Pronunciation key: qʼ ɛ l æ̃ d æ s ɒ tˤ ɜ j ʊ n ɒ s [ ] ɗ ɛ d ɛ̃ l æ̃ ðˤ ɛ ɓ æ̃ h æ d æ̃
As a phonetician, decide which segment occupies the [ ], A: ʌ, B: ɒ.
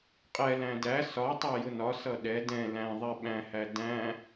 A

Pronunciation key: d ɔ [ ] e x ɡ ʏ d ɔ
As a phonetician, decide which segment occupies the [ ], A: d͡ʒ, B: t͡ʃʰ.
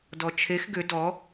B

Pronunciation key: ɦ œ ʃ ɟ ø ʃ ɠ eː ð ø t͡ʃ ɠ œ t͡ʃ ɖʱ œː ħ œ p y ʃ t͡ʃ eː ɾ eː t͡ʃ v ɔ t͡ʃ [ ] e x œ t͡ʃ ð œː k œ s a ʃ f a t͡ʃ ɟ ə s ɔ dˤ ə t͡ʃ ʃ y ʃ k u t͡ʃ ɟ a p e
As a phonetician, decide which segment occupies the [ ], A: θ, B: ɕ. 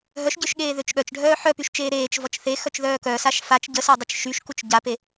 A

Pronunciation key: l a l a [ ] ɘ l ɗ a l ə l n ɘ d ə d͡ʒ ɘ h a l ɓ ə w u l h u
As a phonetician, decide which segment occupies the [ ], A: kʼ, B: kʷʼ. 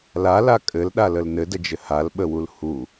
A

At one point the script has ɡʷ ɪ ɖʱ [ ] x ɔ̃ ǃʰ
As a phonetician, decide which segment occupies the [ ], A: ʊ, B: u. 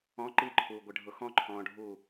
A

